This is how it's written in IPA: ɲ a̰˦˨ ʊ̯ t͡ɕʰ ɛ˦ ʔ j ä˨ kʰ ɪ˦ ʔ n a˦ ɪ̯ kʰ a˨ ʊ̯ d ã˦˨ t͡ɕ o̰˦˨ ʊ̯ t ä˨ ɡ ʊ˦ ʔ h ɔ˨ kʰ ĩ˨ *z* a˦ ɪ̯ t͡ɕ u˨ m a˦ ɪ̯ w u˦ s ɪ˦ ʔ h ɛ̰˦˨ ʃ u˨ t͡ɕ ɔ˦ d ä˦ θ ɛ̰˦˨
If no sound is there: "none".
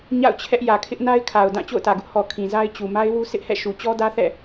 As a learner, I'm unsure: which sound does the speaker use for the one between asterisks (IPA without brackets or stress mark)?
z